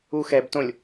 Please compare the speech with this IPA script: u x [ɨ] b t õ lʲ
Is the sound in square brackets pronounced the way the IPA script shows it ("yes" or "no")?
no